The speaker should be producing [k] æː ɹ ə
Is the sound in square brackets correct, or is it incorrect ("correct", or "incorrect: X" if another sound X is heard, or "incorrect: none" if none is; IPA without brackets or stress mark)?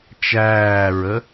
incorrect: t͡ʃ